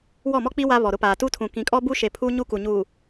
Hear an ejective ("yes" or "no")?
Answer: yes